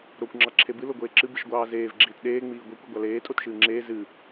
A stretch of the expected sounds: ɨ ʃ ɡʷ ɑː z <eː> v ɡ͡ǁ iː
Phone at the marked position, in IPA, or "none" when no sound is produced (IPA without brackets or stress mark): eː